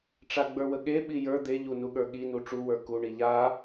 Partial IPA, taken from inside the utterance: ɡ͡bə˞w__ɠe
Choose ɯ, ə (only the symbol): ə